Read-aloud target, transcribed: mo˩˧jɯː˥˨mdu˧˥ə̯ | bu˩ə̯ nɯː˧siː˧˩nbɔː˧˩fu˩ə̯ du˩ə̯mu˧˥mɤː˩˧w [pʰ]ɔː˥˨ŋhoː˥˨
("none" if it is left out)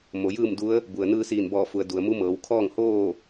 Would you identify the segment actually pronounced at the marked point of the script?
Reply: kʰ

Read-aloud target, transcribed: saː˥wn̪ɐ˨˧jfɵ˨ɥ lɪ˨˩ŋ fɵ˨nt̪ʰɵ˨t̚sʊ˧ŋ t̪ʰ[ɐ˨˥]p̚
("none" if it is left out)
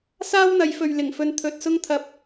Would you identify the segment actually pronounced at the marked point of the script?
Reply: ɐ˨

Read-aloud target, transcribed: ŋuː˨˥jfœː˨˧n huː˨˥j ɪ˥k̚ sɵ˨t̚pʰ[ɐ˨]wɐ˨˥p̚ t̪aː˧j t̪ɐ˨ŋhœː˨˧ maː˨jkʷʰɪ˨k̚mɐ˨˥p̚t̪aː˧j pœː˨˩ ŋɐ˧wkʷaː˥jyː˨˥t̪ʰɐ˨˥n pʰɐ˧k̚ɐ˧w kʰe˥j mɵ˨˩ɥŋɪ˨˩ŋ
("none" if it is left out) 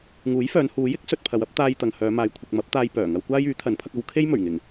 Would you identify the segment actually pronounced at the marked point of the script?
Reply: ɐ˨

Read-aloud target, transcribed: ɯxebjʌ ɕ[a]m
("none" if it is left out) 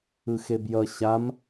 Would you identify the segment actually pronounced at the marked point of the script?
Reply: a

